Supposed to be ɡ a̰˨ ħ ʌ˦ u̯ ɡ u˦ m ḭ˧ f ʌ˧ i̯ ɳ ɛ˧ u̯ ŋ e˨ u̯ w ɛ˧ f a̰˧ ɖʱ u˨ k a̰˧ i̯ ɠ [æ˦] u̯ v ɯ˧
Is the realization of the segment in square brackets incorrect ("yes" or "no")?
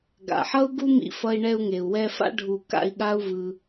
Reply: yes